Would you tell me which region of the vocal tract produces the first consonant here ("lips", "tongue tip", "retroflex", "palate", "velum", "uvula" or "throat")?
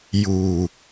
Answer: palate